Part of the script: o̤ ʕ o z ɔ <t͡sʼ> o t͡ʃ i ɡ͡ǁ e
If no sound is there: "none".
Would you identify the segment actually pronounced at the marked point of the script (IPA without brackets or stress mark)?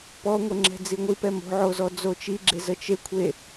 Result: d͡z